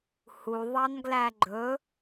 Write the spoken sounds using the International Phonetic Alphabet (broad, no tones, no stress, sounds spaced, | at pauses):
h u ðˤ ɑ n ɡ l æ ɡ͡ǃ ɵ